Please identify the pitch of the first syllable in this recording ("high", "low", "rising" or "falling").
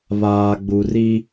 low